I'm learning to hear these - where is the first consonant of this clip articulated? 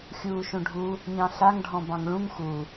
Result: velum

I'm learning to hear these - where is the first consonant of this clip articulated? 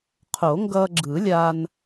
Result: uvula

